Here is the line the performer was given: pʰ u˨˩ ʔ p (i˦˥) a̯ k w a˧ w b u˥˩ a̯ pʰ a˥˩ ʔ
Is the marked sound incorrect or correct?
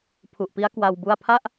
correct